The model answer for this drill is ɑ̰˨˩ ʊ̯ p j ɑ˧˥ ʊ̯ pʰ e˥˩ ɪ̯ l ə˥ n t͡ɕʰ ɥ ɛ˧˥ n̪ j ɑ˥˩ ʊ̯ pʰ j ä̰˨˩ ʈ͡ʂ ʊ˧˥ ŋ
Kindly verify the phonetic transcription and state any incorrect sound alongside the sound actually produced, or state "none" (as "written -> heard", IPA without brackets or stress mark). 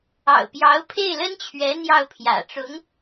none